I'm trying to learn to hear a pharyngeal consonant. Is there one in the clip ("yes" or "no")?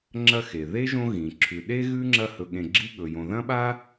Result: no